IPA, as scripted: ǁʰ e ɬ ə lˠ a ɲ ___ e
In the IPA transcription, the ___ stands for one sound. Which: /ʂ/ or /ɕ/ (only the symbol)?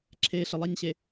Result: ɕ